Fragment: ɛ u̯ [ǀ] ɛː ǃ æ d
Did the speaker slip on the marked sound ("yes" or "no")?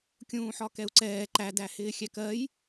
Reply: no